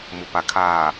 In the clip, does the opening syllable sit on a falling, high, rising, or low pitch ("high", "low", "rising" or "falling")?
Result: low